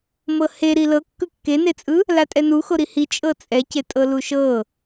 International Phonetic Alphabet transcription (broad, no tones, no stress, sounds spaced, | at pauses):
m ɤ h e ɾ i l ɤ kː ɯ kː e n e t͡sʼ ɯ | l a tʼ ɛ n u x o ɾ i h i t͡ʃʼ ɤ t͡sʼ ɛ c e tʼ ɤ l u ʃ ɤ